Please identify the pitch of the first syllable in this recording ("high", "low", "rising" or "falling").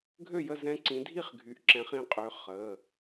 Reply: falling